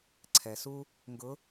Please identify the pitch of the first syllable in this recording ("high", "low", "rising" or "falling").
low